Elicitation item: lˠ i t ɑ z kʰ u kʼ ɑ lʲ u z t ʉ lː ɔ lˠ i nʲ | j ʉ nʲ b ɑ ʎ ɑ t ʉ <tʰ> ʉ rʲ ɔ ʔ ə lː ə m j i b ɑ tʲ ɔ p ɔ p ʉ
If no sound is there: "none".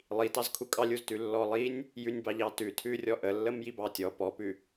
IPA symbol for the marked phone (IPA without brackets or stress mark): tʰ